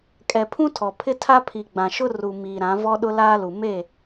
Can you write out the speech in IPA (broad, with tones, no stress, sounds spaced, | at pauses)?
kʼ ɛ˨ pʰ ũ˦ tʰ ɔ˨ pʰ ɪ˦ tʰ a˦ pʰ i˨ ɡ͡b ã˨ ʃ ʊ˦ r u˨ m iː˨ ɾ ã˨˦ v ɔ˦ ɗ ʊ˦ l aː˦ l u˨ m e˦˨